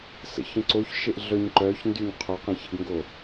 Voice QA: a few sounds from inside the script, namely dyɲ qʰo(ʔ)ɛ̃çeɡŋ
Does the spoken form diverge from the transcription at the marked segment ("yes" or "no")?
yes